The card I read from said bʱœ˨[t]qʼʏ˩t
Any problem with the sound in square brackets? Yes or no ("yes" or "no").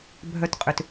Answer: no